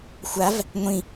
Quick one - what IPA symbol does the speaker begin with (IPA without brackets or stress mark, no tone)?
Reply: xʷ